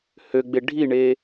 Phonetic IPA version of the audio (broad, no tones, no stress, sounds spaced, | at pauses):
h ø ɡ͡b e ɖʱ i ɳ eː